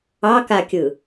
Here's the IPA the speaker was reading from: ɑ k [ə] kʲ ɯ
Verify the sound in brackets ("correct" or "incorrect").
incorrect